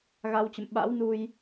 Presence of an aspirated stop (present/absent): absent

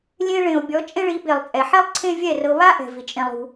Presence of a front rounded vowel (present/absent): absent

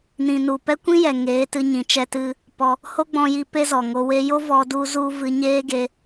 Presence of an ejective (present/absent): absent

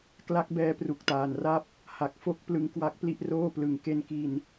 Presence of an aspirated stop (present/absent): absent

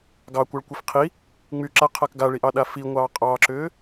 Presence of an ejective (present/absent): present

